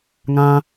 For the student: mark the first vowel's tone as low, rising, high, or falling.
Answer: high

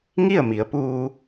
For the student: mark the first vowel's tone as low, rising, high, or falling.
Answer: falling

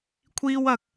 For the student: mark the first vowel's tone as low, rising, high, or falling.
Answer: high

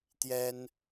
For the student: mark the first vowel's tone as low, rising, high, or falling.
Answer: high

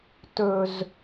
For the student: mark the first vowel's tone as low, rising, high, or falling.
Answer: low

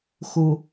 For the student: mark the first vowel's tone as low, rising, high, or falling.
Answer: low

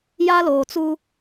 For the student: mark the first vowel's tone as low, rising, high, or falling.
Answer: high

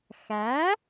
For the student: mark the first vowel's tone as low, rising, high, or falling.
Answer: rising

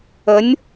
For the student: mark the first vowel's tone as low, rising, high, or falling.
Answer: rising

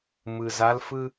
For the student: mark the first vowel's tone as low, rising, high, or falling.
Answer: low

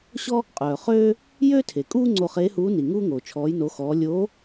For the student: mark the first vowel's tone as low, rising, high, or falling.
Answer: high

